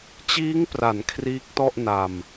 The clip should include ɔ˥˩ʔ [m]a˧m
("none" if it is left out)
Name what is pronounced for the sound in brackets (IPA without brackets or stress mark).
n